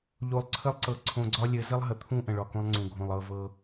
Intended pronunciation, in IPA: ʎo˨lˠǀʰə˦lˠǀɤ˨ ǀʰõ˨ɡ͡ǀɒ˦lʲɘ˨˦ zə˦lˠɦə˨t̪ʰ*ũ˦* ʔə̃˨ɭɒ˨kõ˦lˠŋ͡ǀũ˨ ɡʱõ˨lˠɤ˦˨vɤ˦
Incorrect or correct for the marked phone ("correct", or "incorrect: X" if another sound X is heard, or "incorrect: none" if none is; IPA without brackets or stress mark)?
correct